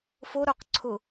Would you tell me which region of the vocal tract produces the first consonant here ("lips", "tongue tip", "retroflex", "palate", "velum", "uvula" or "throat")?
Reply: lips